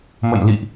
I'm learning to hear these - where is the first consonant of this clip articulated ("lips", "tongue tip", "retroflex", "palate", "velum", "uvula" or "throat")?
lips